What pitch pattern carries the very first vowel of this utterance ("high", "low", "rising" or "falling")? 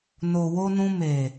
low